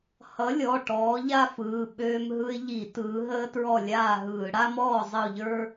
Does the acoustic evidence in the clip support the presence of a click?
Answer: no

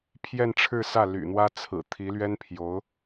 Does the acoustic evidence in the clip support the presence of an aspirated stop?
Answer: yes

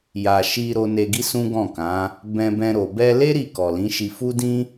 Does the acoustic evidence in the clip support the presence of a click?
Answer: no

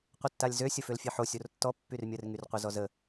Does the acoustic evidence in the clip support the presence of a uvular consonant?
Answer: yes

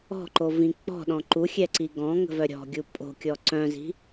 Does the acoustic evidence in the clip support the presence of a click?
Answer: yes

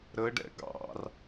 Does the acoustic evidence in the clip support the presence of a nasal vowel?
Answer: no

